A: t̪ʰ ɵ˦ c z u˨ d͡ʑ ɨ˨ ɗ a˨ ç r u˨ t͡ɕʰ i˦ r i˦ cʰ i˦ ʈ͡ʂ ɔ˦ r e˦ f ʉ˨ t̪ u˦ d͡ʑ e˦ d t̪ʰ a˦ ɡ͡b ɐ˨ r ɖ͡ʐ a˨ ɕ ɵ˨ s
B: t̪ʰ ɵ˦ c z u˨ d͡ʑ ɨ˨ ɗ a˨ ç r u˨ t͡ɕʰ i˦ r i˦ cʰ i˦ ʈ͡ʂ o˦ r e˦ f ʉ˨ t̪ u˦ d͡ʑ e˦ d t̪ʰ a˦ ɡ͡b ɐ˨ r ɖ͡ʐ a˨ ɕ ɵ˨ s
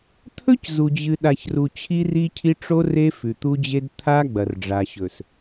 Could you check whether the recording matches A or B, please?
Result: B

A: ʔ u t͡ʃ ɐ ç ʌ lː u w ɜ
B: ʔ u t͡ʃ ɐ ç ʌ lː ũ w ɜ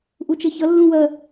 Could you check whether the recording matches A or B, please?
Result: B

